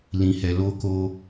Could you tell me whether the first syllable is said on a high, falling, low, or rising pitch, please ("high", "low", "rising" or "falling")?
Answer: low